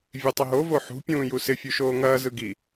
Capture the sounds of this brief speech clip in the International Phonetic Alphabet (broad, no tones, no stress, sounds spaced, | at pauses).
vʲ e tˤ ɪ ɦ o v o ħ ṳ pʲ ũː j u s ɪ fʲ u ʃ oː ŋ ɐː z ɯ ɡ i